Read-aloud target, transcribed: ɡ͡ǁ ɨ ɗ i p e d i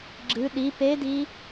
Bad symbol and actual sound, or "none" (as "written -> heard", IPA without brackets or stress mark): none